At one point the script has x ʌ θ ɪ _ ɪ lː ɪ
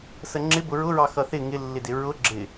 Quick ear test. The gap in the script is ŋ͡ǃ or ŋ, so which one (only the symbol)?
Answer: ŋ